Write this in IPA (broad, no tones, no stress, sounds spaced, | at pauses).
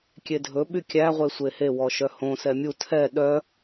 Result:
kʲ e dʱ ɵ ɓ y kʲ æ ʁʷ e sʷ e h e w ɔ ʃ œ h õ s ɛ mʲ u tʰ ɛ ɗ œ